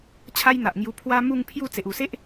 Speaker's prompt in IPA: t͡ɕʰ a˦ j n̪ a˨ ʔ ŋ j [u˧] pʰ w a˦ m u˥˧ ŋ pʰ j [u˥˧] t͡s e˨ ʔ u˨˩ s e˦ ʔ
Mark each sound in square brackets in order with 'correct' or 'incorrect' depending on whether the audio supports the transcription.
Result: correct, correct

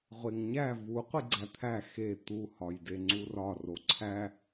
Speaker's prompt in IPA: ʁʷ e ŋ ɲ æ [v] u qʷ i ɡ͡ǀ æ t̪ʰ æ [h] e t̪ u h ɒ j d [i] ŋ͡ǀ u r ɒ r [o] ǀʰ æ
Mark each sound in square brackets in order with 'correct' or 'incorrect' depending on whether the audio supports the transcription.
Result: correct, incorrect: x, incorrect: e, correct

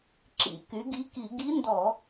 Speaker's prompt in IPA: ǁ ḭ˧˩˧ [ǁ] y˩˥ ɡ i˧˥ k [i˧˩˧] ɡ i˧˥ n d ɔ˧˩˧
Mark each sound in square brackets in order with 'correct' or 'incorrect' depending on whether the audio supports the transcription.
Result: incorrect: k, correct

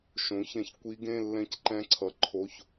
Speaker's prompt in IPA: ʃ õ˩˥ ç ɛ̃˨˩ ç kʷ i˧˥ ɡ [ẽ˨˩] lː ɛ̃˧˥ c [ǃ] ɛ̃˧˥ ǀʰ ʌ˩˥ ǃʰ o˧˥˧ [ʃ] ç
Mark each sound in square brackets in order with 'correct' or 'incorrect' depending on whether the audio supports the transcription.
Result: incorrect: ẽ˧˥˧, correct, incorrect: none

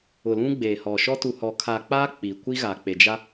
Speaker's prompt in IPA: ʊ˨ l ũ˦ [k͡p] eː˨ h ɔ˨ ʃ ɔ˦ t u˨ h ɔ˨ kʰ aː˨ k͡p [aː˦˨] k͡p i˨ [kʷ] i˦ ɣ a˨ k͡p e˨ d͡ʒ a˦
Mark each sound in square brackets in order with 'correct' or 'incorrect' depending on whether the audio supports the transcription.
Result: incorrect: ɡ͡b, incorrect: aː˦, correct

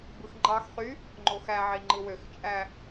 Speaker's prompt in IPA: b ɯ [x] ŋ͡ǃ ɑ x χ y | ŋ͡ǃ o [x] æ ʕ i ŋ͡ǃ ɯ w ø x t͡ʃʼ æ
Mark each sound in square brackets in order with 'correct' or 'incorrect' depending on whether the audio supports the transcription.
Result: correct, correct

